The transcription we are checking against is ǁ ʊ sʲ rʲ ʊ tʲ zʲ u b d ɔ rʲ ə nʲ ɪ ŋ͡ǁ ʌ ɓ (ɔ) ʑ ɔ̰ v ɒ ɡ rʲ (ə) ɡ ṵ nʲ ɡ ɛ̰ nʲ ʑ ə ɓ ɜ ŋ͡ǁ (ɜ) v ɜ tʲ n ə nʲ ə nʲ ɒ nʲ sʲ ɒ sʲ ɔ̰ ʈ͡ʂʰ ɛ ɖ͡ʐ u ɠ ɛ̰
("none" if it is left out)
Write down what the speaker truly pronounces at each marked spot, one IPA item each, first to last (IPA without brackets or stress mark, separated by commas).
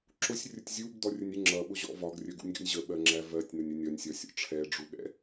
ʊ, ə, æ